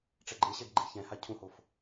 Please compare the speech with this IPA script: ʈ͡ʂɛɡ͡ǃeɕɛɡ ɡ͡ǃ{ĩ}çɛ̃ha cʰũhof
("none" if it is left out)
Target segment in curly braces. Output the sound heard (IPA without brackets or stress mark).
i